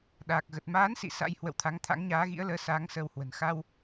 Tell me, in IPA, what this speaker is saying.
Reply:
ɗaː˨˩k̚ɣə˨˩t̚ maː˨˦nsḭ˧˨ sa̰˧˥jhwə̰˧˨wt̪ʰa˨˦ŋ t̪ʰa̰˧˥ŋɲaː˨˦ɣḭ˧˥ə̯ləː˨˦ saː˨˦ŋsəː˧whwə̤˨˩n xa˧w

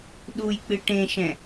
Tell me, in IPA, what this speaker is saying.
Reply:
ɗujk͡pɨ ʈẽʃɛ̃

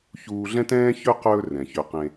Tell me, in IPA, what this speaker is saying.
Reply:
çuː˧ɮɛ̃˦tɛ̃ː˦ çɵ˦ qɵː˧ rɛ̃˨çø˧qẽ˧

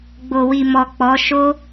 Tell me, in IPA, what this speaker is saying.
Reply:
ɡ͡bo˨wi˨ mɔ˨ k͡pɔ˨˦ ʃo˦

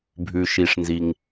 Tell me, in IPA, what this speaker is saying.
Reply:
bʱʉ˨ʃi˨ʂnzi˨ŋ

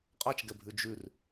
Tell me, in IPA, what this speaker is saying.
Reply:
qʼat͡ʃɡɛbʱʉ d͡ʒʉr

